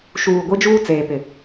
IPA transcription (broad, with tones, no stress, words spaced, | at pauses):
ʃuː˨ ɡʷi˦d͡ʒuː˦ t͡seː˨pɪ˨